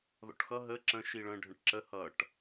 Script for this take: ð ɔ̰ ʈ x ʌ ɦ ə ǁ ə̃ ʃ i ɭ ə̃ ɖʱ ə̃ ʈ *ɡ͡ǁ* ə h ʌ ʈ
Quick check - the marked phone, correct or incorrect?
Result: incorrect: ǁ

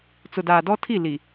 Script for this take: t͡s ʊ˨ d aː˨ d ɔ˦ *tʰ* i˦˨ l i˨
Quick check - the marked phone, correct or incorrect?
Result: correct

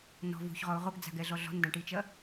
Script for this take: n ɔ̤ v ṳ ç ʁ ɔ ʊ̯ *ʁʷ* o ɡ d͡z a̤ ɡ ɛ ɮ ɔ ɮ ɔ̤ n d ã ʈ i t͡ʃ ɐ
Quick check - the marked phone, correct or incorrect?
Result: incorrect: ʁ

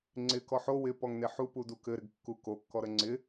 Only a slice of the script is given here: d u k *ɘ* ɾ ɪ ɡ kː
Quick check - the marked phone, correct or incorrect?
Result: correct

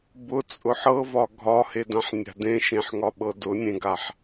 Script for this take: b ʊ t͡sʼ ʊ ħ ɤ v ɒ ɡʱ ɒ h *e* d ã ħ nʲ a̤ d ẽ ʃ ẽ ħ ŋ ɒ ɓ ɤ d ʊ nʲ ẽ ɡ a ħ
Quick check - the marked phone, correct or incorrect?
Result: correct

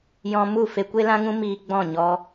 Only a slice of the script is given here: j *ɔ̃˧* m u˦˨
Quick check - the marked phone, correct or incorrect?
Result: correct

